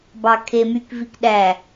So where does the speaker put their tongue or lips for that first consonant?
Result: lips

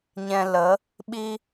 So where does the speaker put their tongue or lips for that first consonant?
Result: palate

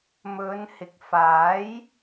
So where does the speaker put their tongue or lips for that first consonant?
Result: lips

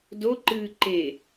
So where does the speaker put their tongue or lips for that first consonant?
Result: tongue tip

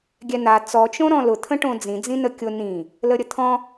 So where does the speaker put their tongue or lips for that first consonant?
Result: velum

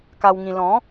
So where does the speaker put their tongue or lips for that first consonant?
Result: velum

